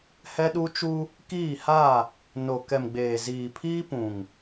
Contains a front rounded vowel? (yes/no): no